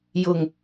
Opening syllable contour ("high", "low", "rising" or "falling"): low